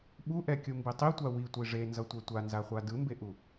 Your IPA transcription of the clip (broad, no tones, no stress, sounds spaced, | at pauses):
ɓ u ʔ ɛ kʲ u m b i tˤ i tʷ a w i tʷ i ʐ e n z ʌ tʷ ɛ tʷ a n z a χʷ a d ɯ m b e ʔ u